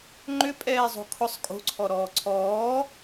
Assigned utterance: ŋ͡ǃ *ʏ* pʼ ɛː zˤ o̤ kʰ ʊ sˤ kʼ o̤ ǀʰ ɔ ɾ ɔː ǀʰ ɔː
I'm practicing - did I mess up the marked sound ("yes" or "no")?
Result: no